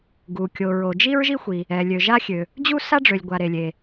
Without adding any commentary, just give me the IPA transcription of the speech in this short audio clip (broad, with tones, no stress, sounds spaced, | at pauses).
ɡ u˩ kʲ o˩ ɹ o˩ d͡ʒ i˥ ɹ ʒ i˥ xʷ i˩ | ɛ˩ lʲ ø˩ ʒ a˥ xʲ ø˩ | d͡ʑ u˥ s a˥ ɖ͡ʐ ø˩ lʲ ɡʷ a˩ ɾ e˩ lʲ e˩